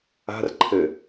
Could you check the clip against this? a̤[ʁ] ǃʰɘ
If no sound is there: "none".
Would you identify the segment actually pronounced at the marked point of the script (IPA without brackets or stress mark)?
r